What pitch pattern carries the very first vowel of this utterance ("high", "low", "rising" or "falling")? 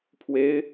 rising